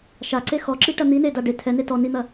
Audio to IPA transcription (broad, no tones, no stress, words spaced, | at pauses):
ʃaǀe xɔǁiʈɐ n̪ineda ɖe tʰɛne tɔ nin̪ɐ